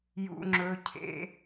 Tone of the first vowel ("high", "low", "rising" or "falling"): high